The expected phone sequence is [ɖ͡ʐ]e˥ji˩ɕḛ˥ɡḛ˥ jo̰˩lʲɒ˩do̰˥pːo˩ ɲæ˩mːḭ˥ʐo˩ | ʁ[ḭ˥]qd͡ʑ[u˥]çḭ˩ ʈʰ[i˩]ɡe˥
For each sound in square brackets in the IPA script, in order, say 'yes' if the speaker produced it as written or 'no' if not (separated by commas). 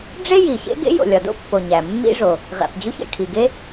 yes, no, yes, yes